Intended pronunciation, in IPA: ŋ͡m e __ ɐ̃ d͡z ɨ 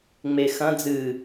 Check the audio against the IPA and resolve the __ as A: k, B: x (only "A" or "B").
B